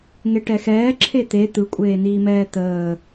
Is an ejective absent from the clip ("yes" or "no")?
no